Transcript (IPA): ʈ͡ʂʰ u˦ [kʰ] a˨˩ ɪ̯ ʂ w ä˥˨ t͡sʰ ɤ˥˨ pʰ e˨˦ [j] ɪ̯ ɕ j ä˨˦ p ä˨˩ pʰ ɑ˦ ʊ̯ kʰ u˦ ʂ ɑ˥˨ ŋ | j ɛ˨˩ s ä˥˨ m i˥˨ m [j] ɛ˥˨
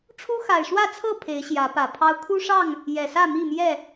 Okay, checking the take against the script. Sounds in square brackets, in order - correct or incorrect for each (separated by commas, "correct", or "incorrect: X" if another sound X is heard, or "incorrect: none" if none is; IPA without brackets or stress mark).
incorrect: x, incorrect: none, correct